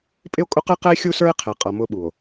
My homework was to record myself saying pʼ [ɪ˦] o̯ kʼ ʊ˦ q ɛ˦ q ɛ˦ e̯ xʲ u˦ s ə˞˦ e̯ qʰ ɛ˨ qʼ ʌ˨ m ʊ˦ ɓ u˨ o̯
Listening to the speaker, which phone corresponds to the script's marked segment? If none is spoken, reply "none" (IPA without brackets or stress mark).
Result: ɪ˦